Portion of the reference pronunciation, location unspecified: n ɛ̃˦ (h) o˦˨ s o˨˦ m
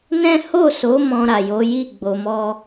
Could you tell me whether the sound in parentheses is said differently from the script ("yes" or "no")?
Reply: no